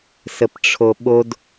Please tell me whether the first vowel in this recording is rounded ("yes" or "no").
no